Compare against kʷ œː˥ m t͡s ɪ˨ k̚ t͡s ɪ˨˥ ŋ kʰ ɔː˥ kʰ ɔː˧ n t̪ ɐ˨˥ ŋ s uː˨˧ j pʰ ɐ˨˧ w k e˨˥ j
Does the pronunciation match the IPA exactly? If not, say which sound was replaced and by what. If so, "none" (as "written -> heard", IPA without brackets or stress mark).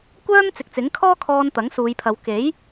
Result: none